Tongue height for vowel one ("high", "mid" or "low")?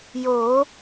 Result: mid